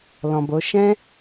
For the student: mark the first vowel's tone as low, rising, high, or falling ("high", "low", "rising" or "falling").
low